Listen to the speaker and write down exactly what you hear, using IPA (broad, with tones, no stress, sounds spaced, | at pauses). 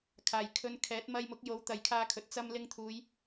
kʰ aː˨˩ j kʰ ɵ˨˧ n kʰ ɛː˨˥ t̚ m ɐ˧ j m ʊ˨˥ k̚ j o˨˥ w t̪ ɐ˨˧ j kʰ aː˧ kʰ ɵ˨ t̚ t͡s ɐ˧ m l ɪ˧ ŋ t̪ʰ uː˨˧ j